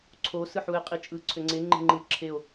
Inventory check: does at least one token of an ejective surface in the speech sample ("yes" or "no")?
yes